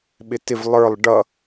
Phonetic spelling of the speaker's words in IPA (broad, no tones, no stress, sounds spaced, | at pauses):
ɓ ɪ t ɪ v lˠ ə˞ lˠ ɖ ʌ